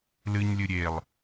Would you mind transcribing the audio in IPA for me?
lɨɲlʲɨ ɾʲelˠ

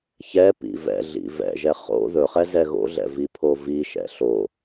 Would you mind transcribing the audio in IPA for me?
çɛpḭ vɛ̰ɮḭ vɛ̰ʒɛ χo̰ ðɵχɛ zɛɣo̰ɮɛ̰ vipʰoviʃɛ̰ ɬo

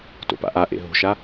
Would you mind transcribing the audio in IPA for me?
to̰pa̰ʔaʔḛ ɦo̤ʃa

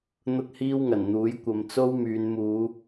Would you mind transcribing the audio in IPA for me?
n̪ʊ˥k̚hiː˥wŋɐ˨˩nn̪uː˨˥j kʷɐ˨˧mt͡so˥wmyː˨˧n muː˨˧

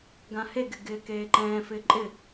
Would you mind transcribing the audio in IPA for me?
ɡãhe ɡɪɡɪːkeːǃɛ̃ː fɪːǃʼɪ

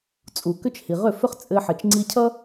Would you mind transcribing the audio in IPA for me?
t͡sʼu˩kʏ˥t͡ʃ hi˩ʁʏ˥˩fʏ˥χ t͡sʼɘ˧ħɘ˩t͡ʃ ŋ͡ǀi˧cʰʌ˥

